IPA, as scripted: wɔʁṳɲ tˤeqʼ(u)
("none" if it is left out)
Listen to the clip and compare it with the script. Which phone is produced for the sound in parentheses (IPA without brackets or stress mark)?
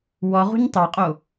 o